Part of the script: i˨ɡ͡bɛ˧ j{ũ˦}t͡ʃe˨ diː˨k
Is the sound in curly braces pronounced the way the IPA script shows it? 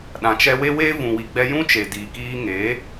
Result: yes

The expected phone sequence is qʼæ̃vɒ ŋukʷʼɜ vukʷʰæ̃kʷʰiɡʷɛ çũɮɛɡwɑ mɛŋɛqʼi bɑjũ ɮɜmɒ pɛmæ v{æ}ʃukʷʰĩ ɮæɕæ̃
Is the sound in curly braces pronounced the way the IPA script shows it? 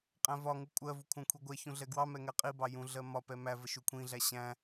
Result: no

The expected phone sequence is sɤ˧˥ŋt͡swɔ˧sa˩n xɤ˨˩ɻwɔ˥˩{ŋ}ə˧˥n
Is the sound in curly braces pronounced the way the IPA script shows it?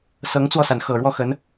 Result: no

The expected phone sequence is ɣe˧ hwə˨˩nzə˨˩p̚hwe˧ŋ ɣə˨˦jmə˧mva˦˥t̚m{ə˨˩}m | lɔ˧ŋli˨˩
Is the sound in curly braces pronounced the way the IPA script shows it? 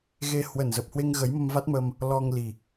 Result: no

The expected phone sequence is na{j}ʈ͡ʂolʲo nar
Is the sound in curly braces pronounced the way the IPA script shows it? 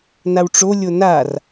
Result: no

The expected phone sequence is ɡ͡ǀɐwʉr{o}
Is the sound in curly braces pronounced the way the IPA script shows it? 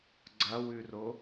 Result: yes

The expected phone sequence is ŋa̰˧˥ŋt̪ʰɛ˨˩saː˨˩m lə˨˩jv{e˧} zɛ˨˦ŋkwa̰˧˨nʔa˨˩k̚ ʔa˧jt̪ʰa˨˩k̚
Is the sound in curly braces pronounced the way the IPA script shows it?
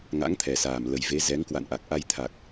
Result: no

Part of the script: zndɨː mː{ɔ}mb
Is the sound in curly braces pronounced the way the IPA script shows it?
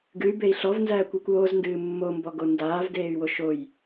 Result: no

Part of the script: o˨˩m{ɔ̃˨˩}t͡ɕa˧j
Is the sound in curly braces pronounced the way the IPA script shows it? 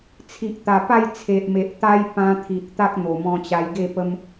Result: no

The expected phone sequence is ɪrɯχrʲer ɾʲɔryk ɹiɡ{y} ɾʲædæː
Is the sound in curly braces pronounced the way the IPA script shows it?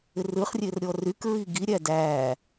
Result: no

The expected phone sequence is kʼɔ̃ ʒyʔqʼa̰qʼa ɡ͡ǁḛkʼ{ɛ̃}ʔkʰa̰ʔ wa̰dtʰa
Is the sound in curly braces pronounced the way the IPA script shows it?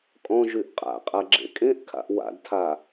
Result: no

